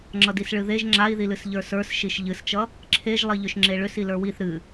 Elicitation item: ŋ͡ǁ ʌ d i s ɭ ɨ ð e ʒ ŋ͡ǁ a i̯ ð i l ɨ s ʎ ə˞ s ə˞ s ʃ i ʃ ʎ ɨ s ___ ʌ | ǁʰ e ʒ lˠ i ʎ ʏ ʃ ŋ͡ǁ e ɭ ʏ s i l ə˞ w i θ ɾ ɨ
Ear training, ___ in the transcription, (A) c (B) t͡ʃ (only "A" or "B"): B